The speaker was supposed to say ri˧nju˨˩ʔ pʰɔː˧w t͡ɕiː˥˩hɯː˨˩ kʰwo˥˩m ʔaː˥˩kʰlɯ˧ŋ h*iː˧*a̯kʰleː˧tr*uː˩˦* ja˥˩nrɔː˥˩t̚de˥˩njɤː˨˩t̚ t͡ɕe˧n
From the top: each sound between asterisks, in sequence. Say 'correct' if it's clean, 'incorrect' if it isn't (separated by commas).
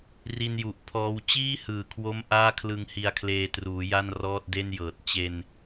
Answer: incorrect, correct